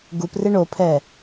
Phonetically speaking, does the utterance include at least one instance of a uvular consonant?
no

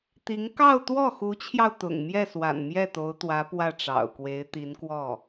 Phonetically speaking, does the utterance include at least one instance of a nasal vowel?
no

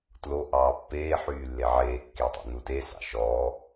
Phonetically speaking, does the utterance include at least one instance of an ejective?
no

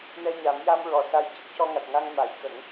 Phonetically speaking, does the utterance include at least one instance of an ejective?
no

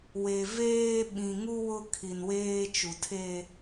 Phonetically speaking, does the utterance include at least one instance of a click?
no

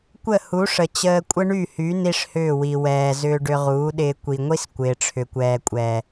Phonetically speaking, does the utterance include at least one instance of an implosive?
yes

